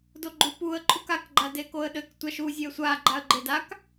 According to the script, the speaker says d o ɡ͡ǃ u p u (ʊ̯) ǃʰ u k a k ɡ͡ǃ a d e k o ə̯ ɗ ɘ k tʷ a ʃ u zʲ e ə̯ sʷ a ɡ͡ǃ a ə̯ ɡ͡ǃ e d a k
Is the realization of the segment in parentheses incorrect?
yes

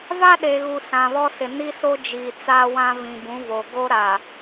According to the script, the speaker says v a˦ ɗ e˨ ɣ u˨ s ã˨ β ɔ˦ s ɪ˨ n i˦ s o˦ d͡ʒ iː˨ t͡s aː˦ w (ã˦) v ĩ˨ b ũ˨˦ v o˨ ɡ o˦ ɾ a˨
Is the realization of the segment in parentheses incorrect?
no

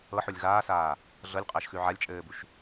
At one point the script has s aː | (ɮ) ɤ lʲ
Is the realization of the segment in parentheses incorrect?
no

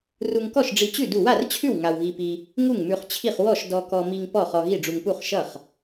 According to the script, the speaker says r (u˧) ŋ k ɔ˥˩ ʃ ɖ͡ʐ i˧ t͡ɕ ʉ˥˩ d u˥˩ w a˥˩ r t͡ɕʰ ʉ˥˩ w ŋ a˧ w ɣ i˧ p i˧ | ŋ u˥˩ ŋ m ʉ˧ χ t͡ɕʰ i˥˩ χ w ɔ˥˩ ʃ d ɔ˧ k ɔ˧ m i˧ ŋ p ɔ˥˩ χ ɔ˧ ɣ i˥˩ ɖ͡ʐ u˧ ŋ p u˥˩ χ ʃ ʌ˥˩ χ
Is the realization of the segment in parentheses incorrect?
no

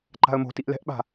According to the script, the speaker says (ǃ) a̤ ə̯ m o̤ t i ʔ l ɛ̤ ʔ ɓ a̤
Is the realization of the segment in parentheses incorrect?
no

